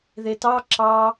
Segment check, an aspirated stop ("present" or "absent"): absent